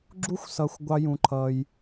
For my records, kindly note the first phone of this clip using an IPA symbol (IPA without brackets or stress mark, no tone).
ɡ͡ǁ